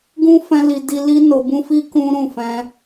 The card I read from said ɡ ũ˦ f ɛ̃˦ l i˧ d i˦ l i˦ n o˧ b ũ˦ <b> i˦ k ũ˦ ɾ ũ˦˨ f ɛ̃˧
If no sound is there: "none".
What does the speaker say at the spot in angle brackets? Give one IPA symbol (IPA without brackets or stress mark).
f